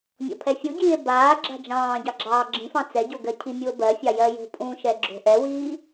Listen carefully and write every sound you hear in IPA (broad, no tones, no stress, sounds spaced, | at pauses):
mʲ ɔ̰ pʰ ɛ fʲ u ɟ iː e̯ b aː ɡ͡ǁ a̤ d͡ʒ ɑ̃ː ɟ ɑ ɡ͡ǁ ɑː ɡ͡ǁ ĩ f ɑ̃ t͡s ɛ ɟ o ɡ ɜ cʰ i mʲ u o̯ b ɜ fʲ ɑ j ɜ j o̤ pʼ ũ ʃ ɛ ɡ͡ǁ o̤ ʔ ɛ w iː